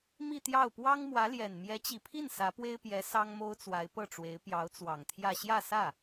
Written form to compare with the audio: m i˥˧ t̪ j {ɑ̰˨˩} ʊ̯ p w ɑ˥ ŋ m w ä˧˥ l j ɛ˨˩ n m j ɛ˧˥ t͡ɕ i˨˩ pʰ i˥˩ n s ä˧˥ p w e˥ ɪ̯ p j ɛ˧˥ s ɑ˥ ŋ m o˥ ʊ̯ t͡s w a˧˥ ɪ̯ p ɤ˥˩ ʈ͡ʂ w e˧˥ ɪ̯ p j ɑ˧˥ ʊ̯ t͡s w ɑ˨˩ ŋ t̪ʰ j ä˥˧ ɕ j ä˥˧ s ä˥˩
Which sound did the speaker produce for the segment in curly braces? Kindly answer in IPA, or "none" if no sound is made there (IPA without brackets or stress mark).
ɑ˥˩